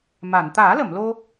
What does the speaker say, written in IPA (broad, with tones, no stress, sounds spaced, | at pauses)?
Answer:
m a˨˩˨ n t̪ aː˨˩˦ l ə˨˩˨ m l o˧